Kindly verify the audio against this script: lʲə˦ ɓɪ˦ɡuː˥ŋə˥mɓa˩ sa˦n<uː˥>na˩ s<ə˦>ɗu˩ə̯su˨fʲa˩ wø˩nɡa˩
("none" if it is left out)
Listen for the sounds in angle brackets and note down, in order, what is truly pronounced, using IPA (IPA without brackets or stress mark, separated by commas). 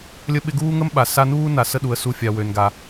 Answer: uː˥, ə˦